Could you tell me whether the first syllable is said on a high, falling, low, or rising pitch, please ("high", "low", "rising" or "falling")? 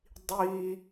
high